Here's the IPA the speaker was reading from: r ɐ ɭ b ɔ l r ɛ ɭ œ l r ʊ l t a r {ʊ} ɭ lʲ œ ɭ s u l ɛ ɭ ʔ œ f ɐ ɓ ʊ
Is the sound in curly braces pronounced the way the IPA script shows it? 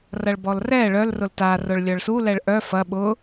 yes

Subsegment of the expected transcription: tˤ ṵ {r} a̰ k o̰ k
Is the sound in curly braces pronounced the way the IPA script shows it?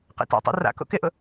yes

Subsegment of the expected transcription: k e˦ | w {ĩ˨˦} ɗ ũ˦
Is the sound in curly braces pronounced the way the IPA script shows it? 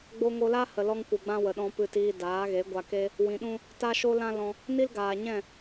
no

